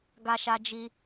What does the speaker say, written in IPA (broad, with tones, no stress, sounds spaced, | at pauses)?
ɡ a˧ ʃ a˧ d͡ʒ i˧